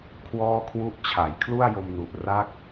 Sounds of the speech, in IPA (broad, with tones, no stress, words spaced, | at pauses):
kʰwɔː˥˩kʰwu˥˩ʔ t͡ɕʰa˩˦jkʰlu˥˩a̯jo˧mnu˨˩ʔ ra˥˩k̚